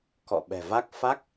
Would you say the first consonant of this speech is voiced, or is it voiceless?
voiceless